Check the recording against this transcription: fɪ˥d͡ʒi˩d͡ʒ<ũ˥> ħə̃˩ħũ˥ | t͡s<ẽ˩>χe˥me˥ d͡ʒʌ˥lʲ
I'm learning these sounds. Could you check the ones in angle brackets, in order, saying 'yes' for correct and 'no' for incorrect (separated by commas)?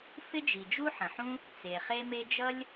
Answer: no, no